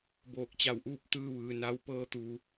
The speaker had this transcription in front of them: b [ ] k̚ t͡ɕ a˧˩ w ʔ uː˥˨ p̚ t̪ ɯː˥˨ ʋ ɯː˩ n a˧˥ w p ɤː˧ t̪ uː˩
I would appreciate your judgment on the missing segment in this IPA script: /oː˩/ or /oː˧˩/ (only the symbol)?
oː˧˩